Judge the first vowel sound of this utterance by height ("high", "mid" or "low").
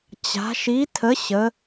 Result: low